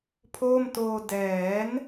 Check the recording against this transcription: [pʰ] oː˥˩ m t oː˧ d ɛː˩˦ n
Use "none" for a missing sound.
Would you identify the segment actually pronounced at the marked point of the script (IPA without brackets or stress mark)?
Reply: pʰ